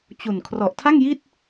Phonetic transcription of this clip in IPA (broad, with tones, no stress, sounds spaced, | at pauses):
t͡ɕ u˨˩ n kʰ r ɔ˨˩ ʔ tʰ a˥˩ ŋ j i˥˩ t̚